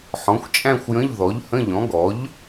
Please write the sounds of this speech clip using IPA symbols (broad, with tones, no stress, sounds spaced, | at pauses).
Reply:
ħ ɔ̃˩˥ xʷ t͡ʃʼ æ̃˥˧ xʷ j ə̃˧˥˧ ʎ ð ɔ˩˥ ʎ h ə̃˧˥˧ ʎ ɔ̃˩˥ ɡ ɔ˩˥ ʎ